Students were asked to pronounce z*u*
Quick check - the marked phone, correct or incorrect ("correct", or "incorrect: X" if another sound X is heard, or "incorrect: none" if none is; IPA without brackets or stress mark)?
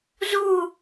correct